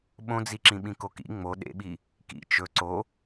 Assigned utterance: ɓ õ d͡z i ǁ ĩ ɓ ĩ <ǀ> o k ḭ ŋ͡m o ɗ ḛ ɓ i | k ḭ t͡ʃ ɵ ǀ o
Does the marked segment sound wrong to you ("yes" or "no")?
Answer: yes